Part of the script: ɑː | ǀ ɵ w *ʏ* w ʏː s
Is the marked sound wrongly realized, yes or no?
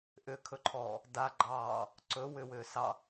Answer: no